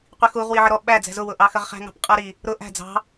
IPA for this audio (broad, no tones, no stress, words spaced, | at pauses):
qʷixuʁ wiʕəɾɔ ɓæ d͡zɛ̤zʊ wʊʔɑxəʁχæ̤ ŋɑ̤pqʼə˞ɾi | ɾʊ ʔæ̤ d͡zɑ̤